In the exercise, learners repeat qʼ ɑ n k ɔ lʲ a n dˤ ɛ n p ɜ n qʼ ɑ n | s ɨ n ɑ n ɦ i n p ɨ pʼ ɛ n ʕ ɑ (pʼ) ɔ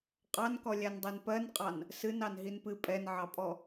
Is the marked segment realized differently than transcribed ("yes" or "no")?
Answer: no